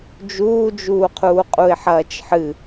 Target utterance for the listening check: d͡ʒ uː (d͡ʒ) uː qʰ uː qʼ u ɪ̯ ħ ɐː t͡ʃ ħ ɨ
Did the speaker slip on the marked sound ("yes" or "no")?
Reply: no